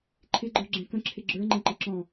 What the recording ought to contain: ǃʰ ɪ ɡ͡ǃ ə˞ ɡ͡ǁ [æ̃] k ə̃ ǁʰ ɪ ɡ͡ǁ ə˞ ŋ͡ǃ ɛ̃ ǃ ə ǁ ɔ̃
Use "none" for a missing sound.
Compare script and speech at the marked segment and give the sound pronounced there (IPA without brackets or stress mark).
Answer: ɛ̃